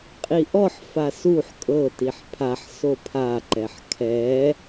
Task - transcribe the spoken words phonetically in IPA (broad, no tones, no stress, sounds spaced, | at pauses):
qʼ i ʔ ɔ ħ f a s u ħ kʼ ɤ t i ħ pʰ a ħ s o pʰ a ǃ ɛ ħ kʰ ɛ